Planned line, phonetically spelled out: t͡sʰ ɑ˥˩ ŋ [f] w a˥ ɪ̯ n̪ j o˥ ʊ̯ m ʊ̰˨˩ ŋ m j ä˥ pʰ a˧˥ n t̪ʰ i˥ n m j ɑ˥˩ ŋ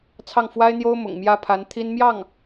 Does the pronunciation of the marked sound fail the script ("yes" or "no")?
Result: no